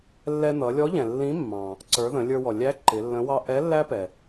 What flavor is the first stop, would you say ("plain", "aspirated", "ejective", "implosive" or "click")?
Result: click